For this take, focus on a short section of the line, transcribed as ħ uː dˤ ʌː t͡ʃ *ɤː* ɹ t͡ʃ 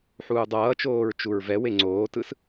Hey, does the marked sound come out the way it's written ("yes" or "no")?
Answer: no